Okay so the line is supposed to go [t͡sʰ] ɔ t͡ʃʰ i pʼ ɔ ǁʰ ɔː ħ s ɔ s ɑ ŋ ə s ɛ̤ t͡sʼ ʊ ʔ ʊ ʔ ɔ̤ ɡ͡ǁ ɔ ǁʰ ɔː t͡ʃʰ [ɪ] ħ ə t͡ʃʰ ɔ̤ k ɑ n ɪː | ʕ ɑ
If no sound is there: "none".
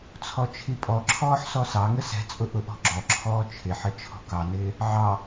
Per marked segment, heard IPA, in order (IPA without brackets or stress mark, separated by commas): t͡sʰ, ɪ